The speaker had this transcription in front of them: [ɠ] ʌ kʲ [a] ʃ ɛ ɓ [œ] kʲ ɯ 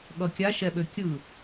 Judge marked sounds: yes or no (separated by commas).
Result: yes, yes, no